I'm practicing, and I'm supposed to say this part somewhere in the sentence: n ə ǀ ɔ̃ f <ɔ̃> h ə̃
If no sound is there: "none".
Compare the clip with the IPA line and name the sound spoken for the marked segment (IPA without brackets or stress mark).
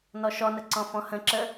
ɔ̃